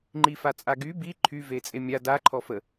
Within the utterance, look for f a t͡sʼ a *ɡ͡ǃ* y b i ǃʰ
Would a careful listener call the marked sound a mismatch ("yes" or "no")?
yes